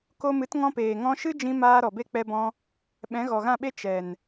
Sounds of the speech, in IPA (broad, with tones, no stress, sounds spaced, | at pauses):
k o˧ m ɨ˨˦ t ŋ ɔ̃˧ p eː˨ ŋ ɔ̃˧ ʃ ɨ˦ d͡ʒ ĩ˧ m aː˧ ɾ ɔ˨ b e˧ k͡p ɛ˧ b ɔ̃˧ | ɓ ɛ̃˨˦ ɣ ɔ˨ ɣ ã˦˨ ɓ e˦ t͡ʃ ɛ˨ n